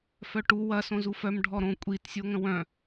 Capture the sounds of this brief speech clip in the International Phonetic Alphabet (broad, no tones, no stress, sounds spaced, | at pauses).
f œ ʈ u w ɐ s õ z u f œ m ɖʱ ɔ ɾ õ kʷʼ i t sʲ o ŋ ə̃ w œ̃